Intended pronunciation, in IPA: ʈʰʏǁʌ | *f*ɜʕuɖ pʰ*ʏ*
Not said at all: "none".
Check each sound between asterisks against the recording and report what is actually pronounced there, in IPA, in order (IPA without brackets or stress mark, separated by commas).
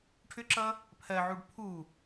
pʰ, u